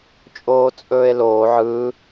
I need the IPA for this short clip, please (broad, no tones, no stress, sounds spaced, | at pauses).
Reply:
t͡ʃʼ oː t͡sʼ ɵː e̯ l oː ʕ ɯ